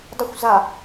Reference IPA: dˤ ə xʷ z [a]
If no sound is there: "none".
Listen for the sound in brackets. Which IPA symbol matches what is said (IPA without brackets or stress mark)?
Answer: a